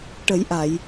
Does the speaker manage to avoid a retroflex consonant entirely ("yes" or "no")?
no